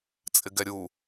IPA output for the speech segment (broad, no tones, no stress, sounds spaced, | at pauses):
t͡sʼ ɪ ɡ ɛ ɾʲ u